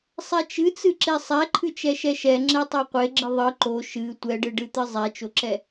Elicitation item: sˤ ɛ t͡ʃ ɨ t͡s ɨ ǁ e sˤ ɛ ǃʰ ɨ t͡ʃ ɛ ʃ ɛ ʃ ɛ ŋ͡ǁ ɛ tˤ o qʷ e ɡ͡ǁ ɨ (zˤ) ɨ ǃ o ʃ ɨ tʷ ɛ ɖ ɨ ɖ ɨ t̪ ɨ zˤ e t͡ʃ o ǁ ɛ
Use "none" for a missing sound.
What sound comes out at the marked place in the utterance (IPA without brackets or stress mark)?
ðˤ